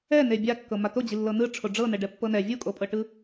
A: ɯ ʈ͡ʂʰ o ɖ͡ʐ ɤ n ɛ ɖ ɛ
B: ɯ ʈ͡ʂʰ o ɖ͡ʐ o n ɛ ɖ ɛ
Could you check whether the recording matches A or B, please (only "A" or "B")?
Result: A